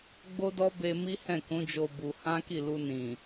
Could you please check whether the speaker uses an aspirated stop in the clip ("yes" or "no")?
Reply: no